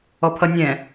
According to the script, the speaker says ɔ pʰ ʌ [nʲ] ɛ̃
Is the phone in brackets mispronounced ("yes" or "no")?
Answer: no